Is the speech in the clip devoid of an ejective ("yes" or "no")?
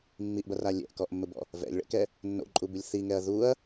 no